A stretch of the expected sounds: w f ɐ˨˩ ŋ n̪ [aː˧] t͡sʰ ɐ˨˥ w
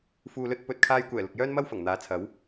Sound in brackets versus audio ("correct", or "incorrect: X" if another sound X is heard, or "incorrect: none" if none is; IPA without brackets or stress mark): incorrect: aː˨˥